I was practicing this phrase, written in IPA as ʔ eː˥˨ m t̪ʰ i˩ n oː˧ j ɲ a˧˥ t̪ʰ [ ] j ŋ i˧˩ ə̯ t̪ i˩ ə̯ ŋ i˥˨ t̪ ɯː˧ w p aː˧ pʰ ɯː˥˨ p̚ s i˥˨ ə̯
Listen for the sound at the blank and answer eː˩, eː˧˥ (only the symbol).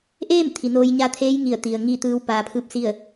eː˧˥